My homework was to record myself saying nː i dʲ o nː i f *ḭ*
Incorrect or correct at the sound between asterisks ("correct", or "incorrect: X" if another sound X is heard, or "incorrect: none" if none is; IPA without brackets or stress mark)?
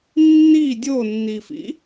correct